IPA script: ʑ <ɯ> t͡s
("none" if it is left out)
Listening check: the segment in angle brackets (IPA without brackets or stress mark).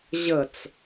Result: ə